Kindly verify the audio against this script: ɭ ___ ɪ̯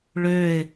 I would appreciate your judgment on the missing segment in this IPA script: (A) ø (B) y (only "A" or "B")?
A